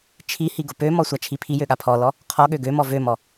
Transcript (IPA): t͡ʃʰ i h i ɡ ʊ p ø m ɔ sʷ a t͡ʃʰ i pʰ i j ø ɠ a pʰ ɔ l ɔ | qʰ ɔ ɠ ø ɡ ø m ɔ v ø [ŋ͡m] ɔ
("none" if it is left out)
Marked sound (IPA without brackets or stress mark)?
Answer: m